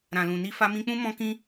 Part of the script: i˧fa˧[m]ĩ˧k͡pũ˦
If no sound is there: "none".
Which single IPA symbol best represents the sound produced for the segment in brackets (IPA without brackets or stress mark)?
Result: m